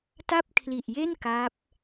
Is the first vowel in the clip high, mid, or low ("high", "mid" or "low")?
low